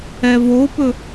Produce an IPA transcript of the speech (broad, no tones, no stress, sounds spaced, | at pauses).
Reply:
ɛ v o p ɵ